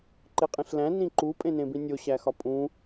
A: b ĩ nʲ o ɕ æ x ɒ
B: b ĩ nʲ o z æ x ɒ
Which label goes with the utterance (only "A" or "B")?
A